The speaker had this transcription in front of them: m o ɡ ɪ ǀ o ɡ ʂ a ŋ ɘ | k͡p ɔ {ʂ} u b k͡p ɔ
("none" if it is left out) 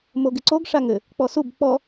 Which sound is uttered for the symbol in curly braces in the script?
s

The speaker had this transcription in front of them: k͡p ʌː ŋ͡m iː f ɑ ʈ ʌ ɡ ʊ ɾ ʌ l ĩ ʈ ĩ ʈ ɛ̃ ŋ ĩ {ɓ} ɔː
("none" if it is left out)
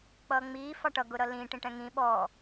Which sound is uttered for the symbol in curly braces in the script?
ɓ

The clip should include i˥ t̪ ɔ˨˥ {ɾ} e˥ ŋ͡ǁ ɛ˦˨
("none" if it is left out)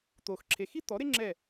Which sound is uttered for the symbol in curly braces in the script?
ɾ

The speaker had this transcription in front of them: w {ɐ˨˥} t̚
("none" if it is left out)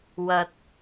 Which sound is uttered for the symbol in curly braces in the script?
ɐ˧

